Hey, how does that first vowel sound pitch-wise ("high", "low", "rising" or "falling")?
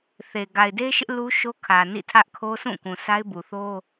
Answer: low